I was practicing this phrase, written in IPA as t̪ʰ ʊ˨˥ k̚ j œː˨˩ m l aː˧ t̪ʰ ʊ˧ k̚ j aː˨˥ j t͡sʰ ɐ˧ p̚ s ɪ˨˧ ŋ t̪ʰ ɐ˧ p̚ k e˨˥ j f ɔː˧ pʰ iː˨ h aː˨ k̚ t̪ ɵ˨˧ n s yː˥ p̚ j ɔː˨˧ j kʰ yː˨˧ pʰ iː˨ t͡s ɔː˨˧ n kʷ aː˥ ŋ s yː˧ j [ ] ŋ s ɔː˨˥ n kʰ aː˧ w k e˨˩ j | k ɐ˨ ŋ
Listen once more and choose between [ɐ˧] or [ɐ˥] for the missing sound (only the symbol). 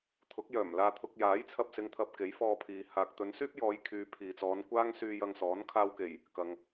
ɐ˧